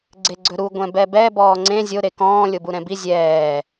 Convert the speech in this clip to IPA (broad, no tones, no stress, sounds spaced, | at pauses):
ɡ͡ǀ e ɡ͡ǀ ɵ ɾ u ɡʷ ɛ̃ b ɛ b ɛ b ɔː ŋ͡ǀ ẽ zʲ o ɾ e k ɔ̃ː lʲ o b u ɾ ɛ̃ b i zʲ ɛː